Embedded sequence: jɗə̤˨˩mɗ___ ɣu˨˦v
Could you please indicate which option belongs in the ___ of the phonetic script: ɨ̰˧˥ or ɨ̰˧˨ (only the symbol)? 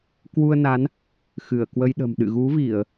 ɨ̰˧˨